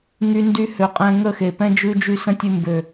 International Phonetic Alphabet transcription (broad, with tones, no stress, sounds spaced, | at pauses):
ŋ y˦ n d y˦ h ø˨ qʼ ɛ̃˧ ŋ ə˦˨ x e˨ p ɛ̃˦ d͡ʒ ʉ˦ d͡ʒ y˦ s ə̃˦ tʲ ʉ˧ m b ø˨